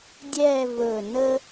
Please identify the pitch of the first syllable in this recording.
falling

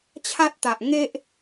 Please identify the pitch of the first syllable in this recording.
high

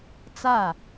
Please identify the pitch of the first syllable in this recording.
falling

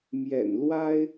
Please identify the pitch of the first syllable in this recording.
low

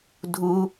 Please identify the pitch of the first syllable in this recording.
high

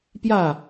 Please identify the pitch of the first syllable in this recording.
falling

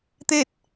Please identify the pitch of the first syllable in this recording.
falling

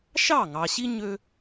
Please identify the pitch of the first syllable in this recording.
falling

